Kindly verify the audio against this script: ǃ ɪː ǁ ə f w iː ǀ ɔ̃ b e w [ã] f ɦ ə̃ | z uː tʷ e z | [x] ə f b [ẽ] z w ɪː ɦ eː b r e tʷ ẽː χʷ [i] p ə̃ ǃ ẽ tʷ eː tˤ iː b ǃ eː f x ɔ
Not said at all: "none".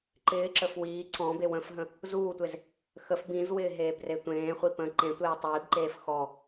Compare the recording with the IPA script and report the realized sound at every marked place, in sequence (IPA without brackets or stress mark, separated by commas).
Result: ə̃, x, ĩ, i